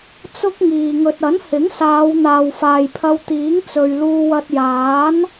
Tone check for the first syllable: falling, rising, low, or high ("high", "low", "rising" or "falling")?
high